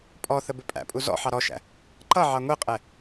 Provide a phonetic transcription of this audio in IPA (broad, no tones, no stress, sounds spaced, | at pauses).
pʼ ɔ θ ə b ɪ pʼ æ̰ pʼ u z ɔ̰ ħ ɑ ɾ ɔ ʃ æ̰ | ǃ ʌ ʕ ɑ ŋʷ i qʼ ɛ